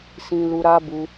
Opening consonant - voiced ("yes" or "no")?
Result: no